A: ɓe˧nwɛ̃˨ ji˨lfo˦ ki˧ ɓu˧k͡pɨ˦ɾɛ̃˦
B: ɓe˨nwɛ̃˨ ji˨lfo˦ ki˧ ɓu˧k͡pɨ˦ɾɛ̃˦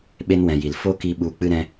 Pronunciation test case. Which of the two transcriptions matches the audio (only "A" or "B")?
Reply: A